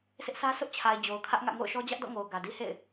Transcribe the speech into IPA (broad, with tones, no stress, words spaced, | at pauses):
sɪ˦ʔsʰä˦ sʊ˦ʔt͡ɕʰa˨ɪ̯ d͡ʑo˨ʊ̯kʰä˦ʔŋä̰˦˨ ŋo̰˦˨ʊ̯ʃɔ˦ d͡ʑä˦ʔdɔ̰˦˨ŋo˨ʊ̯ ɡä˨di˦ hḛ˦˨ɪ̯